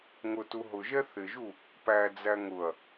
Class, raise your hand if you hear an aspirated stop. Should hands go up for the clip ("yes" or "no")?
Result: no